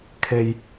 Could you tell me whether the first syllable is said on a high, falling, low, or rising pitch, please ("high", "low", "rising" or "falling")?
low